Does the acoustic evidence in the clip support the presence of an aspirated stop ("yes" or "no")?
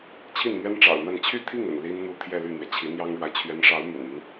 yes